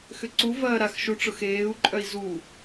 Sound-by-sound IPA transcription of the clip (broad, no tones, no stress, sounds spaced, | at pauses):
x ʏ ǀ u v ɐː ɾ a x ʃ u ʈ͡ʂ ʊ x eː u̯ ǃʼ œ i̯ z u